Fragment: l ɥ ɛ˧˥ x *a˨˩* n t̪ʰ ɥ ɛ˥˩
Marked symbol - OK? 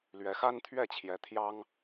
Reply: no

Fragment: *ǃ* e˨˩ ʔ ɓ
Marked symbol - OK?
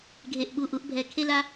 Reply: no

